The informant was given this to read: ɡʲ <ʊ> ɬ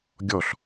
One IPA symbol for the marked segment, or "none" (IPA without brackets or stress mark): ɔ